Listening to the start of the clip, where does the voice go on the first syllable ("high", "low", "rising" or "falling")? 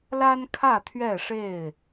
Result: high